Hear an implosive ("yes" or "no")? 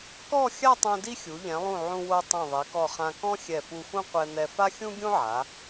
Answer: no